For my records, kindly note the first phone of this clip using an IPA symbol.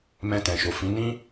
m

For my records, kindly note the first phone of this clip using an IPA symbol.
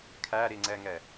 kʰ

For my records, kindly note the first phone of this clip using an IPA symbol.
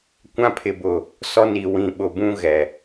kʷ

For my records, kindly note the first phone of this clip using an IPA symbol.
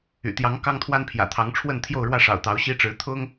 y̰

